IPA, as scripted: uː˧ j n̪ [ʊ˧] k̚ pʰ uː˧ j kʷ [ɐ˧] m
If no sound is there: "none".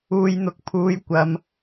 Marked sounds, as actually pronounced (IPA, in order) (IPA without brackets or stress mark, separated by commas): ʊ˧, ɐ˧